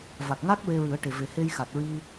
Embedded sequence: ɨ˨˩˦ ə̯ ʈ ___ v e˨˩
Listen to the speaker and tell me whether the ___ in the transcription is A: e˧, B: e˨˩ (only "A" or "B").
B